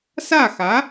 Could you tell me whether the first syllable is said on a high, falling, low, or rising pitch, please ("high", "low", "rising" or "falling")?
falling